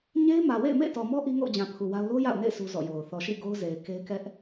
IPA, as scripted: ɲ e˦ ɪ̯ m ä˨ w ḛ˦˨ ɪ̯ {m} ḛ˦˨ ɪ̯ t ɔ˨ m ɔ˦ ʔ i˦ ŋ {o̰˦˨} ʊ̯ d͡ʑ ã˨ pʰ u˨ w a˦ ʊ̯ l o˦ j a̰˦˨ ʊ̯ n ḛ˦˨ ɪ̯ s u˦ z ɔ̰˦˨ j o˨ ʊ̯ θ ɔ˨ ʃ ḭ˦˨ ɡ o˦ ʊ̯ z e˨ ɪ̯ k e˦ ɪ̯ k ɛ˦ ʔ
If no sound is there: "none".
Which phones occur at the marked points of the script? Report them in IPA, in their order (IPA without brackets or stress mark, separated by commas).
m, o̰˦˨